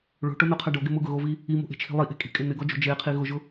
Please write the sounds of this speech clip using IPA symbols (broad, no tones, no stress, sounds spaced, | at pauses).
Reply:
ɭ o̤ ʈ o n o qʰ a ɖ o ɡ ɪ m ʊ ɡ ʊ ɣ o v i | i m o̤ ʔ e̤ t͡ʃʰ i̤ lˠ i ʔ e̤ kʼ i̤ kʼ ɪ n ɪ ɡ ɔ d͡ʒ o̤ d͡ʒ e qʰ i ɣ ʊ ʒ ʊ